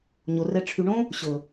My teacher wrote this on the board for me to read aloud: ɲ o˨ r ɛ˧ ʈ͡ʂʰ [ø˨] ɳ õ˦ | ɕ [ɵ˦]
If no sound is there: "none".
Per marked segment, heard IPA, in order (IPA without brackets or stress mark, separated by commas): y˨, ɵ˨